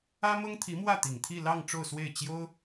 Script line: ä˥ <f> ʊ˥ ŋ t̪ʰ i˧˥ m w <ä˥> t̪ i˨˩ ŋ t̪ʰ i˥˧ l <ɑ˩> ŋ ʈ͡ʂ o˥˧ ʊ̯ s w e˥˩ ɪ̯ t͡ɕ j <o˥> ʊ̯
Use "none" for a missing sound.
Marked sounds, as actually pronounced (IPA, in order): m, ä˥˩, ɑ˥˧, o˥

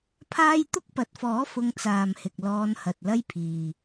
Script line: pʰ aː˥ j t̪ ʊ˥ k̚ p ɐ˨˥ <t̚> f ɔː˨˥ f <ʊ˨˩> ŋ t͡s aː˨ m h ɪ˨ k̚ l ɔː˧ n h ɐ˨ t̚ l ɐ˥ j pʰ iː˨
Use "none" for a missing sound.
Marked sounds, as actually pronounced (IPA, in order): t̚, ʊ˧

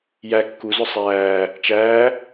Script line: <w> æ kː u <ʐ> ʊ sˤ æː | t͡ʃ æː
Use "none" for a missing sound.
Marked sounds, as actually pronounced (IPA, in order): j, z

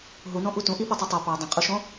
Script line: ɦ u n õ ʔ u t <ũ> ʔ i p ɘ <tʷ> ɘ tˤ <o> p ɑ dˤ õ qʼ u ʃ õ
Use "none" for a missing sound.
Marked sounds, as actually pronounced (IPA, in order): ũ, tˤ, o

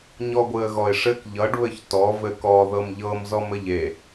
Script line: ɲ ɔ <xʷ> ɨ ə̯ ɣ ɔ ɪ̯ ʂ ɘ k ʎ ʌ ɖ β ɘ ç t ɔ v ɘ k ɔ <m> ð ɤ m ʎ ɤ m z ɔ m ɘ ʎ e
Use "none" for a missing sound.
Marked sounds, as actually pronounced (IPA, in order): ɡʷ, none

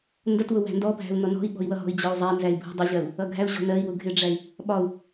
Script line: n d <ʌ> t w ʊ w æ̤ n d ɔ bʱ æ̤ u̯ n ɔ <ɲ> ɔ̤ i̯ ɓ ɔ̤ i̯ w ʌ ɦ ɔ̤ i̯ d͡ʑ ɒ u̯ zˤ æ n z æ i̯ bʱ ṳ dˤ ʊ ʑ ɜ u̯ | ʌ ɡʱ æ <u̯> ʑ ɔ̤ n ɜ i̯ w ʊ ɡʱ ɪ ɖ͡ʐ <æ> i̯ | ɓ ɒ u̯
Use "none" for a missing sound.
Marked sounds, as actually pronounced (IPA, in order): ʌ, n, u̯, æ

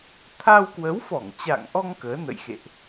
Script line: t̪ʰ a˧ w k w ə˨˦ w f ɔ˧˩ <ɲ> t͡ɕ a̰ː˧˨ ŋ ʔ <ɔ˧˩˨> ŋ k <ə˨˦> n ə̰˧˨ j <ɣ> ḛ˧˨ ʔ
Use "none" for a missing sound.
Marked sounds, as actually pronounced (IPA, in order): ŋ, ɔ˧, əː˨˦, x

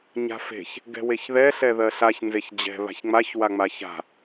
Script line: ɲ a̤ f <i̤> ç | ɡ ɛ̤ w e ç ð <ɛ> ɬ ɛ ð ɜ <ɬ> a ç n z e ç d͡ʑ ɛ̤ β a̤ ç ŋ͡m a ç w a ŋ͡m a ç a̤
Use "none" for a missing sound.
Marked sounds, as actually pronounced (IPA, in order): e̤, ɛ, ɬ

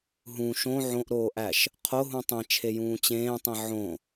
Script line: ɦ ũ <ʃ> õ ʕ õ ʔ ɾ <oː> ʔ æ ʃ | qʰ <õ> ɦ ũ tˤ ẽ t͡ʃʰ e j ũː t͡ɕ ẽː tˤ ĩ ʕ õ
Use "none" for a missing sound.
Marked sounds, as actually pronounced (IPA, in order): ʃ, oː, o

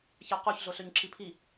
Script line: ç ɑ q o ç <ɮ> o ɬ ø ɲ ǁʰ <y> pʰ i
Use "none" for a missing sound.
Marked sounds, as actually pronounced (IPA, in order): ɮ, i

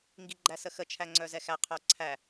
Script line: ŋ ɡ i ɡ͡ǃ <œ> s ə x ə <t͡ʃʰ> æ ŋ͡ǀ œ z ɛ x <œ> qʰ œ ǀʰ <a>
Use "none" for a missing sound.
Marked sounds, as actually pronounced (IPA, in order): æ, t͡ʃʰ, æ, æ

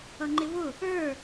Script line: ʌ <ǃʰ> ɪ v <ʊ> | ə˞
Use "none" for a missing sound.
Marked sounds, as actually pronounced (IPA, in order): ŋ͡ǃ, ʊ

